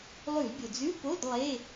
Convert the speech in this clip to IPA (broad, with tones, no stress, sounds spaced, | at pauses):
lˠ ʉ˧˩˧ l bʲ o˩ d͡z ʉ˧˥˧ p o˧˥˧ d lˠ e˧˥˧